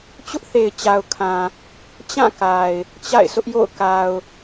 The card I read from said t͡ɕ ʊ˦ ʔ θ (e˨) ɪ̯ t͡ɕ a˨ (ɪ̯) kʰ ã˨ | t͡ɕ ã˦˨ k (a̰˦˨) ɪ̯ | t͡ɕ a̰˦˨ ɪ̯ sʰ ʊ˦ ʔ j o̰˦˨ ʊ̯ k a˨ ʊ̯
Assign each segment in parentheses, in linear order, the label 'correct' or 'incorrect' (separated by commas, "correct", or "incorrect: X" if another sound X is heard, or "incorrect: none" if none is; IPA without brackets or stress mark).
correct, incorrect: ʊ̯, incorrect: a˨